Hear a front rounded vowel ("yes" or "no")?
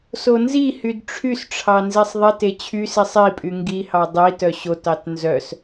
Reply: yes